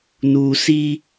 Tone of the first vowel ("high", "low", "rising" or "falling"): low